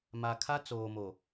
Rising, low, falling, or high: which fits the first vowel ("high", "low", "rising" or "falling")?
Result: low